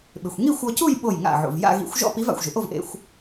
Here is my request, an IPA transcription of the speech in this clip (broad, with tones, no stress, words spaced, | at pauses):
ɓɪ˩xʷ ŋi˥˧xʷɔ˧cu˥˧j ɓo˧˩jŋa̰˧˩ ʕṵ˩v ja̰˥˧ɣḭ˧˥xʷ ʒɔ̰˥˧pi˧˥v a̰˧˩xʷʒɪ˩ʔo˥˧vʔḛ˧xʷ